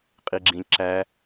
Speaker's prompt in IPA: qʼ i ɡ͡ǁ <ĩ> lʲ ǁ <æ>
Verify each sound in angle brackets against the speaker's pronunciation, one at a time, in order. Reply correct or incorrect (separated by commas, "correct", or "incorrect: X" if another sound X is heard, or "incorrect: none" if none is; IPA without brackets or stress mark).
correct, correct